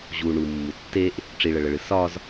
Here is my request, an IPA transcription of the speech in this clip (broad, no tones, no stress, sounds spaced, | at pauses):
ʑ u ɳ u mː u tː e ʔ | ʈ͡ʂ i ɭ ə ɭ ə ɭ ɨ s ɒ z